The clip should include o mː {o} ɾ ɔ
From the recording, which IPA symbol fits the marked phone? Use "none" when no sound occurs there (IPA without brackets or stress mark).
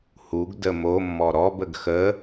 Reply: ɔ